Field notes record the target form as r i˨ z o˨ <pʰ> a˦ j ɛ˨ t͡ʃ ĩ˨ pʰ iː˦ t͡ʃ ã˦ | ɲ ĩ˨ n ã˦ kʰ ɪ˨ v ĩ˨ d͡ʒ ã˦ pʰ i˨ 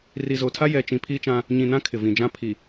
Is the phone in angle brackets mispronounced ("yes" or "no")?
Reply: yes